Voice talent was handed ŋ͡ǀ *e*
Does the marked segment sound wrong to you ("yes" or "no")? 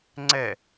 yes